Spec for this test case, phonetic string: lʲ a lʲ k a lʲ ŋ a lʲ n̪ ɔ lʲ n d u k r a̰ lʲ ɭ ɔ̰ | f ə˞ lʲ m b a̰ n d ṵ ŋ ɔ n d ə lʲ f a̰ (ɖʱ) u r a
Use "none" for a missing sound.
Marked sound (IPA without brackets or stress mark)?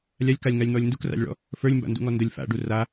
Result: ɖ